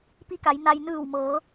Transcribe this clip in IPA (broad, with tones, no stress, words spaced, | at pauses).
pi˧˥ka˩˧j na˧j nɯː˧˩wmɤː˩˧